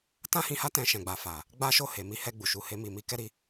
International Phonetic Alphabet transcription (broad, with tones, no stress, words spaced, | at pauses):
tã˦hĩ˧ha˦ tɛ̃˧ʃɛ̃˨ɡ͡ba˨fa˨ | ɡ͡ba˦ʃo˦˨he˨mi˧ hɛ˧ ɡ͡bu˨ʃu˧he˦mi˦˨ mi˧kɛ˦ɾi˦˨